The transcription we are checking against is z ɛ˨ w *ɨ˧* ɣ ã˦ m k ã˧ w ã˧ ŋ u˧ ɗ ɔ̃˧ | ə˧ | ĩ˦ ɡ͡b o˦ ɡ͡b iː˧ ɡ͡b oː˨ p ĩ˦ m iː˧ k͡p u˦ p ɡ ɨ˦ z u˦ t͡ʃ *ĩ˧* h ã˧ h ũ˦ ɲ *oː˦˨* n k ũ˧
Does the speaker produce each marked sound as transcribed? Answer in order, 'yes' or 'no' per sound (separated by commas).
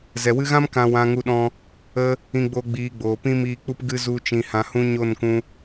yes, yes, no